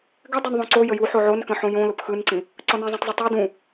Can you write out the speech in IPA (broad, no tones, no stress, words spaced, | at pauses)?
ɡɘ dˤɘnðˤõǀo jəju ħoʕonkə̃ ħõjõlʊp xɯnǀĩ | ǀɔnẽzˤõtˤzˤʊ tˤe dũ